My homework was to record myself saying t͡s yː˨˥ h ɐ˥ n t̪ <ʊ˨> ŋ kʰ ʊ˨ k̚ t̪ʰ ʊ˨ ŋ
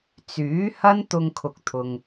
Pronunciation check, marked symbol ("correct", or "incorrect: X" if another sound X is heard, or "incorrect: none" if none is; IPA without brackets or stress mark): incorrect: ʊ˧